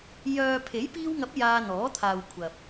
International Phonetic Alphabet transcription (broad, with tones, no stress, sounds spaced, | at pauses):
j œː˨ pʰ e˨˥ j p iː˧ w ŋ ɐ˨˥ p̚ j aː˧ n̪ ɔː˨˥ t̪ʰ aː˨ w kʷʰ ɐ˨ p̚